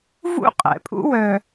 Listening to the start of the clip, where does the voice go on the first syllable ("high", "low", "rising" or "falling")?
high